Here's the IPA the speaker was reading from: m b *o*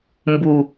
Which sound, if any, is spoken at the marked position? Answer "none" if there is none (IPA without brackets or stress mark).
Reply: u